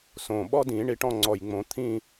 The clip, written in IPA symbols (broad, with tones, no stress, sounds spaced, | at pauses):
s õ˨˩ ɓ ɔ˥ d ĩ˨˩˦ ɳ i˨˩˦ ʈ ɔ̃˦˨ ŋ͡ǀ ɔ˨˩ j ŋ͡m õ˨˩˦ t̪ʰ ĩ˦˨